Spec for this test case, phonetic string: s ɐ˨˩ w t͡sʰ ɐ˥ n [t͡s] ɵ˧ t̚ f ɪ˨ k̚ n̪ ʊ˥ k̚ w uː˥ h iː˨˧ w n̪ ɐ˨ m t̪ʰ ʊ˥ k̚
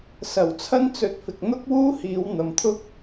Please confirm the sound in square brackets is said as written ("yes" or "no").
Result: yes